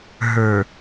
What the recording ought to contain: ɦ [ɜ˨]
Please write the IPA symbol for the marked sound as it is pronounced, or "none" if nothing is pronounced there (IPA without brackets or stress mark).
ə˞˨